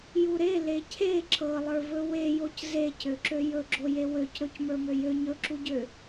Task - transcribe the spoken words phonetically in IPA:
j u ɾ e l e cʰ e ǁ ɤ lˠ ə˞ v ɵ w e j o c z e c ø ǁ ø j ɵ ɡ͡ǁ o j e w ø c ɾ ɵ c m ə˞ m ø j ø ɲ ɵ ǁ u ɟ ø

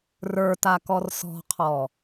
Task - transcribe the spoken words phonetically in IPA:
r ə˞ t a k ɔ r s ɔ̤ qʰ ɔ

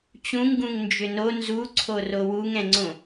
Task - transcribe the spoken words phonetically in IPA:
t͡ɕ ũ ŋ ɡ ũ ŋ n d͡ʒ ʏ n o n z u ǀʰ o r o w u ŋ ɛ̃ ŋ͡ǀ õ

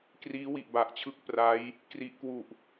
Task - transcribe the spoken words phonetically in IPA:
k r iː˦˥ w i˨˩ ʔ b a˨˩ ʔ t͡ɕʰ ɯ˥˩ k̚ p r a˦˥ j | k r i˦˥ ʔ k w u˨˩ ʔ

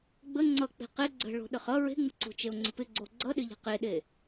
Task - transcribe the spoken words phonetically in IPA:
ɡ͡b ə ŋ͡ǀ ʌ k͡p e̤ q ɪ ɡ͡ǀ ə̤ ɭ o̤ ɗ ə χ ʌ ɹ e̤ ŋ͡m ə̤ ǀ o̤ t͡ʃ e o̯ ŋ͡ǀ ə̤ p ɪ ɡ͡ǀ o ɡ͡ǀ ʌ ɗ ɪ ʎ e̤ q e ɗ e

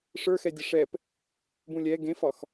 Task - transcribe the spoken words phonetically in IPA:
ʂ ə˞ x ɛ dʲ ə ʂ ɛ p | b ũ lʲ ɛ ɡ ẽ f ɒ x

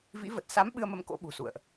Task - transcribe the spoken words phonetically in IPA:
v ḭ˧˥ v ə˨˩ t̚ s a˨˦ m ɓ ɨ˧ ə̯ m ə˧ m k o̰˧˥ ɓ ṳ˨˩ s ṵ˧˨ ə̯ ʔ

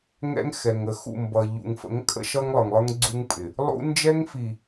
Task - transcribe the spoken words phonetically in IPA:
ŋ ɛ̰˦ ŋ x ɛ˨ ŋ ə˨ x ṵ˦˨ m b ʌ˨ ʎ ṵ˨ ŋ f ə̰˨˦ ŋ kʼ ə̰˦ ʃ ʌ˦ ŋ lˠ ə˞˨ ŋ lˠ ə˞˦ ŋ ɡ͡ǀ u˦ ŋ pʼ ɪ˨ | lˠ ṵ˦ n d͡ʒ ɛ˦ ŋ f i˨

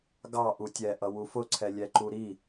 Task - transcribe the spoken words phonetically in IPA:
ɡ ɑ ʔ u tʲ ɛ ʔ ʌ w u f ʊ ǀʰ ɛ lʲ ɛ ǃ u ɾ i

